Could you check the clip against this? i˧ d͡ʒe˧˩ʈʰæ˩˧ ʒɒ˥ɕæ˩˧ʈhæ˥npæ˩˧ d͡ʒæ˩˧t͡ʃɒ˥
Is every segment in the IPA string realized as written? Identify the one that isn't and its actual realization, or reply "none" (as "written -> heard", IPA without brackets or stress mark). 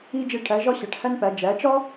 none